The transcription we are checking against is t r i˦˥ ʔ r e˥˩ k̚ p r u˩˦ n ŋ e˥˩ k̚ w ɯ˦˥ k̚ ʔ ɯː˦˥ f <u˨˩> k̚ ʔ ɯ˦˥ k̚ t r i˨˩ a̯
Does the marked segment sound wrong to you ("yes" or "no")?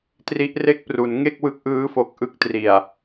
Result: yes